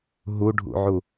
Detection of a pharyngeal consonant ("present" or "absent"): present